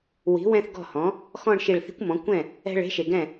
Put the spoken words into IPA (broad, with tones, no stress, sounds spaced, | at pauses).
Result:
w i̤˩˥ w ɛ̃˥˧ θ ɡ ɔ̤˥˩ h ɔ̃˩˥ | x ɔ̃˥˧ ɳ ʃ i˧˩ ɭ θ i̤˦˥ kʷ m ɔ̃˩˥ kʷ ɛ̃˥˩ | ɛ̤˥˧ ɭ e̤˦˥ ʃ e˩ ɡ ɛ̃˥˩